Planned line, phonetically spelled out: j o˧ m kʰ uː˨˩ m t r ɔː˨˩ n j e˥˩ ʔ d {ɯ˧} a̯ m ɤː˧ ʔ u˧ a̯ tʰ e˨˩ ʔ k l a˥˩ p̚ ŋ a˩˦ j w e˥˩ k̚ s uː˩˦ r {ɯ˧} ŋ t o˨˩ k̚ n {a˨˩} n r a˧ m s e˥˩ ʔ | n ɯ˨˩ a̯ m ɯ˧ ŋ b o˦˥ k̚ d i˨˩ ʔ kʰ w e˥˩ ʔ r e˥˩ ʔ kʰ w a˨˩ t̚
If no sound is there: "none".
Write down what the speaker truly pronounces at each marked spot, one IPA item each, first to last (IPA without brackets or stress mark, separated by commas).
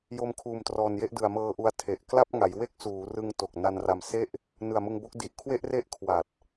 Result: ɯ˨˩, ɯ˧, a˧